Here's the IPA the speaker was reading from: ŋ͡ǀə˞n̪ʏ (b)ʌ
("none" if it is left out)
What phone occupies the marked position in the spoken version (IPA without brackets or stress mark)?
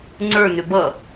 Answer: b